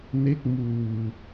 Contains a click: no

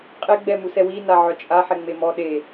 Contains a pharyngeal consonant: yes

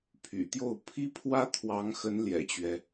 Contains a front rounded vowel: yes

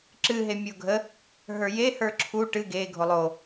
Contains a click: yes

